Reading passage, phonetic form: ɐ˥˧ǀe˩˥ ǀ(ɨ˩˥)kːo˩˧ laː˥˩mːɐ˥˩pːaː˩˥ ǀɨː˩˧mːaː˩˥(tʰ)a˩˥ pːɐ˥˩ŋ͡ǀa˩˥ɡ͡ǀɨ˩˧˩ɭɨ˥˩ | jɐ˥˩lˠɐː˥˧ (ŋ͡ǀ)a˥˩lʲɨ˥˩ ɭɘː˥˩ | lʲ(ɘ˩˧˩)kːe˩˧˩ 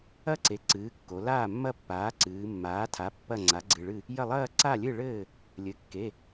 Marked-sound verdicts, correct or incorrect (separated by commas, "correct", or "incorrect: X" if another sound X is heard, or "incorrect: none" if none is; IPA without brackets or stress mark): incorrect: ɨː˩˥, correct, incorrect: ǀ, correct